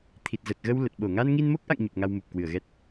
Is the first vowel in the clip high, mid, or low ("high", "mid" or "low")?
high